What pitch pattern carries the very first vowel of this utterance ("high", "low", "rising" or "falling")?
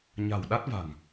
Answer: low